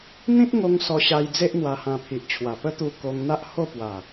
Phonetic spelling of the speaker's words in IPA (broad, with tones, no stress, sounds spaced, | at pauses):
n̪ ĩ˦ t̚ ŋ o˧ ŋ s ɔ˧ ɕ a˧ j d͡z e˦ ʔ n̪ w a˧ h ã˧ pʰ i˨ ʔ t͡ɕʰ w a˨˩ p ə˦ t̪ u˧ k o˧ ŋ n̪ a˦ ʔ h o˥˧ p w a˨˩